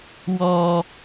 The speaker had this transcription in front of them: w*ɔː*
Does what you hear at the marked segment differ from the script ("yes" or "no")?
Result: no